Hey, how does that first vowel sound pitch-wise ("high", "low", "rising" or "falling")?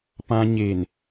low